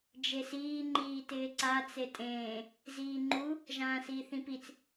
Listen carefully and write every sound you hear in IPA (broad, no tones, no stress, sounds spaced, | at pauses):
d͡ʒ e s iː ŋ͡ǃ iː t ɪː ǀ a t͡s e tʼ ẽː | z iː ŋ͡ǃ u | ʒ ãː s iː θ ĩ p i t͡s